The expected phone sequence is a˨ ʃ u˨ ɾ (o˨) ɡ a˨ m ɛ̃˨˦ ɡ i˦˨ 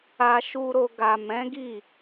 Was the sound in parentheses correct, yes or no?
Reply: yes